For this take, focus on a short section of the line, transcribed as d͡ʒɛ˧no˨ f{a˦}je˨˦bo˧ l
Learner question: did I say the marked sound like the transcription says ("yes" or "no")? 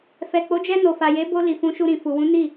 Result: no